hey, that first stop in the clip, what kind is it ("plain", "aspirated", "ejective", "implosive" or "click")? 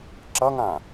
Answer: click